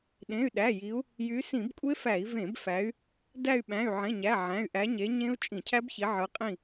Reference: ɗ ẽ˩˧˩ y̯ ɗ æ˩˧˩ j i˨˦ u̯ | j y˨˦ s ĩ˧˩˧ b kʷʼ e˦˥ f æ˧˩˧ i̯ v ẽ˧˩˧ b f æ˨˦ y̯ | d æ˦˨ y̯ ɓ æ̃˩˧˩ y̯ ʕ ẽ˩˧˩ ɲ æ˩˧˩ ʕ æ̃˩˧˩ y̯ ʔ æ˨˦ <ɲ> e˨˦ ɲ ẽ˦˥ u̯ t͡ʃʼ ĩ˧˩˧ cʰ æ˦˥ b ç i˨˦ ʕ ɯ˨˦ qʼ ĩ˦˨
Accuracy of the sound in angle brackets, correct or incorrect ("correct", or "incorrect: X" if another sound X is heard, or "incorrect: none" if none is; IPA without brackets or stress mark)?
correct